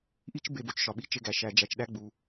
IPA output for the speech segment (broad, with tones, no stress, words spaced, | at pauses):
ʔi˥t͡ʃ be˥bo˧t͡ʃʃɒ˧ɓi˥ t͡ʃe˥ɡæ˧ʃæ˧ d͡ʒæ˧t͡ʃɗæ˥ ɡ͡bu˧